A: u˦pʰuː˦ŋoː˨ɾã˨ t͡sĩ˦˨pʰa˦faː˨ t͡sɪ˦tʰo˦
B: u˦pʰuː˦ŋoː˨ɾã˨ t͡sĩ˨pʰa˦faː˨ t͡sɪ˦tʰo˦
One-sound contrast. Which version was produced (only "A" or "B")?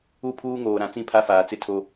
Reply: A